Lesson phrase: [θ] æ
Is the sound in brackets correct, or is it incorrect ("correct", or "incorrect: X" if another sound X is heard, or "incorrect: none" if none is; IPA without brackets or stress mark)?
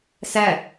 incorrect: s